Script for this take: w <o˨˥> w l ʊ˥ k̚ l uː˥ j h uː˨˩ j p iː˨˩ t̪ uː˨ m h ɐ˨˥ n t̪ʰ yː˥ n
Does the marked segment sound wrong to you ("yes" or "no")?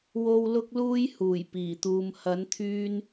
yes